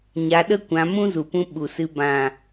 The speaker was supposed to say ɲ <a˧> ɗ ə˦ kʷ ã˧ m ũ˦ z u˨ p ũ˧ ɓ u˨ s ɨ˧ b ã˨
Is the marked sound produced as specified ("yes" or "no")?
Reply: yes